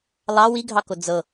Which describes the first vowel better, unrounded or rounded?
unrounded